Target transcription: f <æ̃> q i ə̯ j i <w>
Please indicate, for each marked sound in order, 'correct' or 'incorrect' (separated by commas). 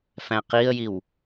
correct, correct